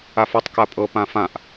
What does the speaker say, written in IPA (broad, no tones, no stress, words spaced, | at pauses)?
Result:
afɒtˤ kapʼɤ pãfãʔ